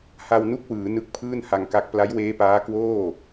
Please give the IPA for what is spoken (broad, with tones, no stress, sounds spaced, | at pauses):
h a˧ w n u˥˩ k̚ w ɯː˩˦ n ɯ˦˥ k̚ pʰ ɯː˥˩ n h a˧ ŋ k a˦˥ k̚ p l a˦˥ j w eː˦˥ p aː˦˥ k w oː˥˩